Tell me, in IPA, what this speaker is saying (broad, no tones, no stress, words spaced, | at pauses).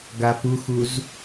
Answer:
ɡapuxuz